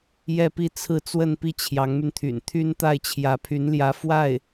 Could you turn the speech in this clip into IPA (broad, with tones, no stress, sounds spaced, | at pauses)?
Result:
j ɛ˥˧ p i˥˧ t͡sʰ ɹ̩˥˧ t͡s w ə˥˧ n p i˥˩ t͡ɕʰ j ɑ˧˥ ŋ m y˧ n t̪ʰ y̰˨˩ n t̪ʰ y˥ n t̪ a˥˩ ɪ̯ t͡ɕʰ j ä˧˥ pʰ y˧˥ n l j ä˧˥ f w a˥˩ ɪ̯